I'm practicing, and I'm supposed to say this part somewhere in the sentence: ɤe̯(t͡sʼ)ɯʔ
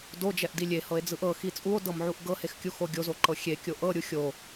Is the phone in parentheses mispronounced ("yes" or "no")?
yes